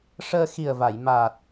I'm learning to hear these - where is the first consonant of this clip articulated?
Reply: retroflex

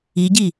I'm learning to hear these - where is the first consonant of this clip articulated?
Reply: palate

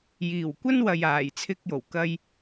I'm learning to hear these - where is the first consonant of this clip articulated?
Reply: palate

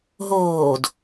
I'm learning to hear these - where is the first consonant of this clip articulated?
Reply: throat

